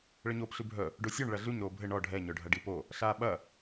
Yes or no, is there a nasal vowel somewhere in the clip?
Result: no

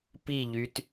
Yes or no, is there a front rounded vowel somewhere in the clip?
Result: yes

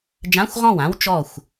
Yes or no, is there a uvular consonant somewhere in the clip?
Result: yes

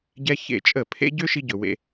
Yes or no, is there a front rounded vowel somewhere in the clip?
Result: yes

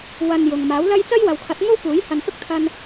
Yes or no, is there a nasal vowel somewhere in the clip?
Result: no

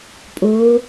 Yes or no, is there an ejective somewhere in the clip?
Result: yes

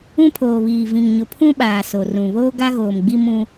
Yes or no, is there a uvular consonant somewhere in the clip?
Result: no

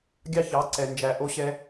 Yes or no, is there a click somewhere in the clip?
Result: yes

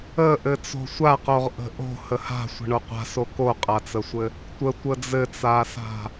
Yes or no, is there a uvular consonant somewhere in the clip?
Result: yes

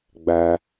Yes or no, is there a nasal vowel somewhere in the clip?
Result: no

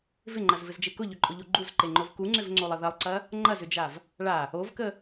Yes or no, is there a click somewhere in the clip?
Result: yes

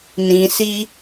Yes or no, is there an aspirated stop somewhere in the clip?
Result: no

